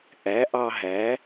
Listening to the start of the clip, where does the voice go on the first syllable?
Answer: rising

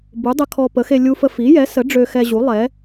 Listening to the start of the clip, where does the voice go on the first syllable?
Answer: rising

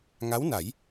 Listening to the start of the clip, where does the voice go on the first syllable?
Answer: rising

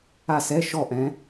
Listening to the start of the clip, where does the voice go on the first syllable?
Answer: falling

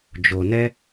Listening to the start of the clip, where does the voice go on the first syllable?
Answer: low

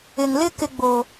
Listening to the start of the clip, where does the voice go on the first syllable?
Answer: low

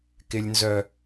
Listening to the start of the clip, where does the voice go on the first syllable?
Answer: low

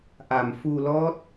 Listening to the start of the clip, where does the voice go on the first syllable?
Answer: low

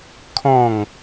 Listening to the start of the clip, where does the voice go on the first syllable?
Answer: falling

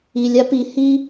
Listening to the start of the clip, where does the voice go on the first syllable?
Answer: low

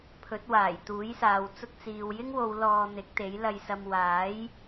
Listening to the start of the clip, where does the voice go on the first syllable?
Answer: rising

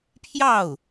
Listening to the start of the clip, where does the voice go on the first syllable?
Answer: falling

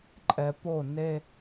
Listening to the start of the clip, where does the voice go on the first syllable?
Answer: low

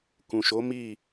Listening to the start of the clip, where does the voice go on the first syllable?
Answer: low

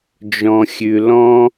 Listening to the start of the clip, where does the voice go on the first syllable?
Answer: high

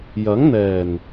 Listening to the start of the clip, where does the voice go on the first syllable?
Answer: rising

